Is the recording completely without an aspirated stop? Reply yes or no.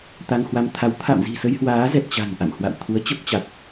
no